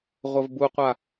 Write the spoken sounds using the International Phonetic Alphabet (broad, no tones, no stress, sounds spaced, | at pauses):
ʁʷ ə v b u qʷ a